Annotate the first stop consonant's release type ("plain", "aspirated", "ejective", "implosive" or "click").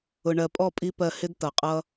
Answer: ejective